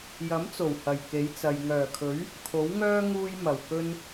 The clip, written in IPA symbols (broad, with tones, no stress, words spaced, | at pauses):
jɐ˨˥mt͡so˨˩w hɐ˨˩jke˨˥jt͡sɐ˨j ŋœː˨˩kʰɵ˨˥ɥ | kʰo˨˥wŋœː˥ ŋuː˥jmɐ˨˩wkɵ˥n